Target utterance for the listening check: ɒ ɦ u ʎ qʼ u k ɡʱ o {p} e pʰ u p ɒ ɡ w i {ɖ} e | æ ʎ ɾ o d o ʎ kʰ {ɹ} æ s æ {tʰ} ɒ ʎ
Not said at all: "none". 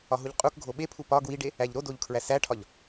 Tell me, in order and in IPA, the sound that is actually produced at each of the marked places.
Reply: ɓ, ɖ, ɹ, ʈʰ

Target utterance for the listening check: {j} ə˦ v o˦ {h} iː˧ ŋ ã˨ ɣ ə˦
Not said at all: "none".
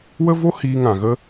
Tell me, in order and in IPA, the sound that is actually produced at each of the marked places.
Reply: w, h

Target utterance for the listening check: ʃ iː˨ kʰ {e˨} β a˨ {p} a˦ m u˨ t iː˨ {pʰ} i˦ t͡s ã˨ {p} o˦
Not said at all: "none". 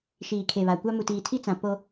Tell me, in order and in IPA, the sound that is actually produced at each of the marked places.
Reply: e˨, kʷ, tʰ, p

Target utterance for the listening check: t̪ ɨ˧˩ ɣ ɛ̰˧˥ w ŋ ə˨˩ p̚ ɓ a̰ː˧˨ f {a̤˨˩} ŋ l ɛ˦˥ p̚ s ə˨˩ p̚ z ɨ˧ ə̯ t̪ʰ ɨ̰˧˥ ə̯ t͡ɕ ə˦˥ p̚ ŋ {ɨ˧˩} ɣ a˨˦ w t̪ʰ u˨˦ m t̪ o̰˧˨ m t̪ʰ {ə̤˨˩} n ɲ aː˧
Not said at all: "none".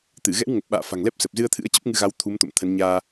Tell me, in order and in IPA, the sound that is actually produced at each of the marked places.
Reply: a̤˨˩, ɨ˧, ə˨˦

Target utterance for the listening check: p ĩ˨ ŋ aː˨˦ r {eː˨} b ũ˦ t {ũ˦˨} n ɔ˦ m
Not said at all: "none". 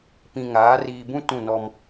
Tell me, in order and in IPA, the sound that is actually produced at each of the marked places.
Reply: iː˨, ũ˦˨

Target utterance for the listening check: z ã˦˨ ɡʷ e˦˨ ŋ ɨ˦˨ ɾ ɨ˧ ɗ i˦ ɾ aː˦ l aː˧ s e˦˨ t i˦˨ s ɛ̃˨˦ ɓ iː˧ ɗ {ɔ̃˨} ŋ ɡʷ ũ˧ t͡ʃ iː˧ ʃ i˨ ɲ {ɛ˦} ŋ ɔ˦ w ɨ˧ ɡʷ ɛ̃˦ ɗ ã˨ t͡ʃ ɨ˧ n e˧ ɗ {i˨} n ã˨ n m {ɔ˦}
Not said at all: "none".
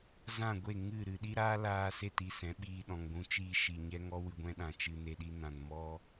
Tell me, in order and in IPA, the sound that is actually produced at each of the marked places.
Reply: ɔ̃˨, ɛ˦, i˦, ɔ˦

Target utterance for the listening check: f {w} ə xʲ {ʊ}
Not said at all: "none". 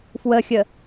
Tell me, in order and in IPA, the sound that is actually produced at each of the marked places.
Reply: w, ə

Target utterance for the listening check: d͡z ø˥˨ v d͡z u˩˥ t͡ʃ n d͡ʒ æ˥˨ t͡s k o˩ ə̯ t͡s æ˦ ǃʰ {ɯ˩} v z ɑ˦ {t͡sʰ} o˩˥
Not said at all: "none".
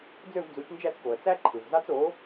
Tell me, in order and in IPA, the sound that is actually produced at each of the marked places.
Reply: ɯ˩, t͡s

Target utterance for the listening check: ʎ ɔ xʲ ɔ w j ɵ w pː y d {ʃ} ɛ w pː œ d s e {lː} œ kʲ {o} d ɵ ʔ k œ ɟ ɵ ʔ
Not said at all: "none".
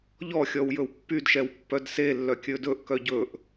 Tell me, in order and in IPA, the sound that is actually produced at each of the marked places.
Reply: ʃ, lː, ɵ

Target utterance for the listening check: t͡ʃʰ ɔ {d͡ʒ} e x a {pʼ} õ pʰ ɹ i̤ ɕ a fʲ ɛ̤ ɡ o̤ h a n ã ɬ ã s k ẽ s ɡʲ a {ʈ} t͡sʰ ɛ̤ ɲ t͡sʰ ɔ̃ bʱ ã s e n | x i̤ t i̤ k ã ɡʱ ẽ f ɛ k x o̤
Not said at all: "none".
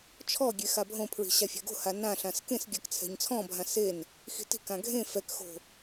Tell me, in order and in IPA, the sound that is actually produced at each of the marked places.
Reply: ɡʲ, bʱ, k

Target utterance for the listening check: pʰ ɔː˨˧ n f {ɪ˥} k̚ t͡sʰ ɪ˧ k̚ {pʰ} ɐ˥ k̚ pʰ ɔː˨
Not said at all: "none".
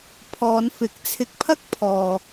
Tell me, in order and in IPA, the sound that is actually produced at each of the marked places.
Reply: ɪ˨˥, pʰ

